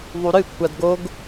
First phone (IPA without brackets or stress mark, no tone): ðˤ